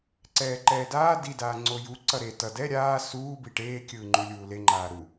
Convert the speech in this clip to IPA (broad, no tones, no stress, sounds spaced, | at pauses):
ǀ ɛː ǃ ɛː d aː d i d aː ŋ͡ǀ o j u ǀ ʌ ɾ e t ʌ d ɛ ɾʲ aː s uː b i ʈ eː kʲ ɯː ŋ͡ǃ u lʲ uː l e ŋ͡ǃ aː ɾ u